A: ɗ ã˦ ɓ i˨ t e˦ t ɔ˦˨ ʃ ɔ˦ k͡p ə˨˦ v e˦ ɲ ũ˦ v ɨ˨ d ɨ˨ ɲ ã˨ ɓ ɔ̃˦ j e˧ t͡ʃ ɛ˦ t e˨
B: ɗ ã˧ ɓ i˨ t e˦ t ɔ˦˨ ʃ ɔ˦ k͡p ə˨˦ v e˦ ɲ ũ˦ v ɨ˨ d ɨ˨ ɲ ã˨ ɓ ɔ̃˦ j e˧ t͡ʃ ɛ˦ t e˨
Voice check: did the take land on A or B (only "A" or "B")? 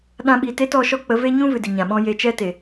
B